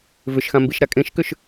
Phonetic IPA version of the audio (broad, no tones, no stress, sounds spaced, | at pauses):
v ʏ ʃ x ã m b i ʃ ɾ a kʼ ẽ ʃ k ʏ ʃ